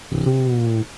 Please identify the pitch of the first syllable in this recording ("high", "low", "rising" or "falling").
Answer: falling